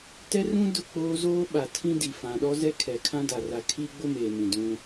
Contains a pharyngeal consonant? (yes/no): no